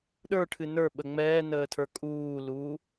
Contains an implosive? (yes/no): yes